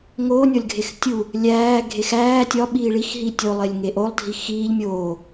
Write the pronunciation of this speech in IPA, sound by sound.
ŋoːnʲɒlʲɡʱex tʲu | lʲæː ɡʱexæː tʲɒ ɓiːɭix ɦitʲolˠelʲ ŋeʔolˠdʱi xiːʎ mʲoː

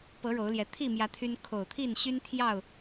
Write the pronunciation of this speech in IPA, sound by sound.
pɤ˨˦ ɻo˨˦ʊ̯ljɛ˨˦ t̪ʰi˥˨mjä˨˦ t̪ʰy˦n kʰo˨˩ʊ̯t̪ʰi˥˨n ɕy˦nt̪ʰjɑ˥˨ʊ̯

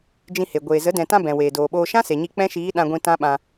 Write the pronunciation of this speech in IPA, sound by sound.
d͡ʒĩ˧he˨ ɡʷeː˨zə˨˦ dɛ̃˨tã˧ bɛ̃˨ weː˨doː˨ɓoː˧ ʃã˦se˨ɲi˧ k͡pɛ̃˦ʃiː˨˦ ɗã˧ɡʷĩ˧ tã˦ɓã˧

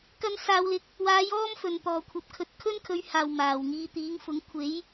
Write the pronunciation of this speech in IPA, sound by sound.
kɐ˧nsaː˨wlɪ˨k̚ | waː˨˧j ɔː˥mfɵ˨˩n t̪ɔː˨˩kʷʰɐ˨p̚kʰɵ˨t̚ kʰɵ˥nkʰɵ˨˧ɥhaː˨˩w maː˨˩wŋiː˨˧t̪iː˨˥ŋfʊ˨˥ŋ kʷʰe˨˥j

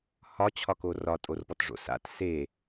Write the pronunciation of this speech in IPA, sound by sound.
hɒt͡ɕʰɒko rɒtʼorpɔtʐo̰ sa̰t se

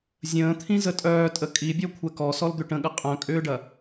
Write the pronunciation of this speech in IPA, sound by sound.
zʲə̃ːt̪ʰĩ zətʼœːtʼə kʼibʲɔ kʷʰɛkɔ sɔld̪ʏʈə̃ɠɐ qʼœ̃kʼʏːɖɐ

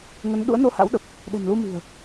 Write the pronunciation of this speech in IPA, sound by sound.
ŋə˨˦n ɗṵ˧˥ə̯no˧ha̰˧˥wɗə˨˩p̚ | ɗɛ̤˨˩nlu˧mi̤˨˩ə̯

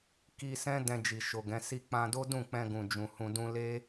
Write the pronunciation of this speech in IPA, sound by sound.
ki˧sɛ̃˦ dɛ̃˧d͡ʒi˨ʃo˨ɡɛ̃˨˦ si˧k͡pã˧ do˦dũ˦˨k͡pɛ̃˧ ɡũ˨d͡ʒũ˨hũ˧dũ˦ le˦

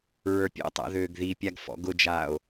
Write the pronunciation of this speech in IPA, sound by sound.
ɹə˞pʲɔ̰tˤa̰ ðøːɡðipʲaɡ fɔ̰ɡʊd͡ʒaːo̯

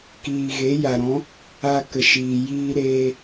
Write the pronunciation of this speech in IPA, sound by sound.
kiː˨ɣe˨˦ja˨ɾɔ̃˨˦ | a˧ kə˨ʃiː˨ jiː˧ɾeː˧

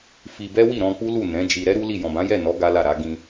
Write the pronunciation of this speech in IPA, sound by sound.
fi˧bɛ˦wi˦˨ ɾɔ̃˧k͡pu˦lu˦˨ nɛ̃˨˦ d͡ʒi˧ ɾɛ˦ɾu˦li˦˨ jɔ̃˨bã˨˦jɛ˦˨nɔ˨˦ ɡa˦la˦˨ɾa˨˦ ɡĩ˧

